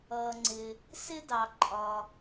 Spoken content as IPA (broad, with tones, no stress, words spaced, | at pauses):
ʌː˩ŋ͡ǀɪ˩ | sɪ˦dɑ˩ǃʼɒ˩